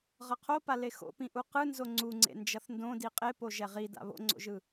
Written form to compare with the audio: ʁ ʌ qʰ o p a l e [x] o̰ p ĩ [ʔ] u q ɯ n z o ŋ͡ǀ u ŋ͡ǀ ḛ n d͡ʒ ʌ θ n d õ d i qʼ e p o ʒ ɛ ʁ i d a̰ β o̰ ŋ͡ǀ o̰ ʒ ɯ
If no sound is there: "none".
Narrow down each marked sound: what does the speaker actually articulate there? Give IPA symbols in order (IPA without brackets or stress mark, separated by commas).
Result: x, ʔ